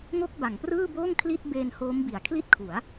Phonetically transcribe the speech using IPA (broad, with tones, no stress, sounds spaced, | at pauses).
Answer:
ŋ o˥˩ k̚ b a˩˦ ŋ p r ɯː˥˩ b oː˥˩ ŋ kʰ l i˥˩ t̚ b eː˧ n h oː˦˥ m b i˩˦ a̯ kʰ l i˥˩ t̚ kʰ u˩˦ a̯